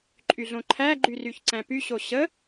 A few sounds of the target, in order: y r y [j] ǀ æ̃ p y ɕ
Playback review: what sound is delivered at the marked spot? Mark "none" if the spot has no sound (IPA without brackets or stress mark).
ç